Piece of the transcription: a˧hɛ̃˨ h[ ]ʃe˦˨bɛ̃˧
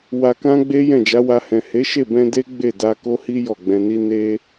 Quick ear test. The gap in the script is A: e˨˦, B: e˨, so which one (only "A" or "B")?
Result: A